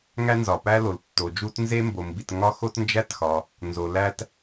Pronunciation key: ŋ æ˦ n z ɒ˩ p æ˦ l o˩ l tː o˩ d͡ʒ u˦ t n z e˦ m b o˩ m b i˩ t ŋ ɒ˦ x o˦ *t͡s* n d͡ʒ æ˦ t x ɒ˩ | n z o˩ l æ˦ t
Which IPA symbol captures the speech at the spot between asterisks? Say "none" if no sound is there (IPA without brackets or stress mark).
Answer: t